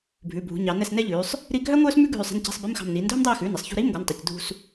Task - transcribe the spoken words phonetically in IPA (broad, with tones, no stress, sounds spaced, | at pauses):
bʱ ʉ˩˧˩ bʱ ṳ˩˧ ɲ ɑ˩˧ n ɛ˦˨ s n ɛ˥ ʎ ʉː˩˧ sˤ | ɾ i˥ ɡʱ œ˥ ŋʷ œː˥ s m ʉ˥ ɡʱ ʉ˦˨ sˤ ɛ̤˧˥˧ n c ɛ̤˧˥˧ sˤ b i˧˥˧ m x ɑ̤˦˨ m n iː˩˧ n dʱ ɵ˥ m dˤ iː˦˨ x ʉː˩˧˩ n ɛ˩˧ sˤ ç ṳ˧˥˧ ɾ iː˧˥˧ m ɡʷ ɑ˩˧˩ n tˤ ɛ˩˧˩ c dʱ ṳ˦˨ s